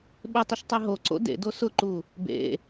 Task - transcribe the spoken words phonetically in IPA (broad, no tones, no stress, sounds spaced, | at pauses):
ɓ ɪ tˤ ɪ ʃ tˤ e ɦ o ǀ o̰ d ḛ d o s ʊ ǃ u | b ḛ